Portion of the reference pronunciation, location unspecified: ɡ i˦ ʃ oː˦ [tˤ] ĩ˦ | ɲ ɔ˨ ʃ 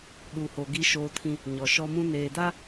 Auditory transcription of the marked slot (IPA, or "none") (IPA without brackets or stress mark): tʰ